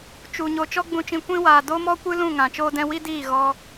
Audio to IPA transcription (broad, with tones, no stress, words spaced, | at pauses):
t͡ʃu˨ ɲoː˨t͡ʃɔ˦ɡ͡bũ˧t͡ʃĩ˧ kʷĩ˧waː˨ do˦mɔ˦kʷɨ˦lũ˦˨ ŋã˨t͡ʃoː˦dɛ̃˦ wi˦diː˦˨ ɣɔ˦